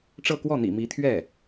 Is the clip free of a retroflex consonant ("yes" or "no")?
no